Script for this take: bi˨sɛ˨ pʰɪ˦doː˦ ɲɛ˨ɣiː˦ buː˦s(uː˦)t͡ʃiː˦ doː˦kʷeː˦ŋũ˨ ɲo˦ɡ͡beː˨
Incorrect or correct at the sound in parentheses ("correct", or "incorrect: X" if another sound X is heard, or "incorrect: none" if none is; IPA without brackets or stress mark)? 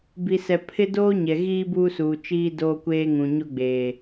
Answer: incorrect: uː˨